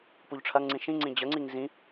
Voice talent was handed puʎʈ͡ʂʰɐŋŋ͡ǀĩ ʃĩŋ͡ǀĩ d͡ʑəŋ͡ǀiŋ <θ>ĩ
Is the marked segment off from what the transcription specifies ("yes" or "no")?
yes